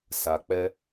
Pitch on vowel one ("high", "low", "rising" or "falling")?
low